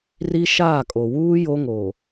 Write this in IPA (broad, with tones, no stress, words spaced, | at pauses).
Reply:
ri˦ʃaː˦˨kʼo˨ wuː˦ jo˦ŋo˨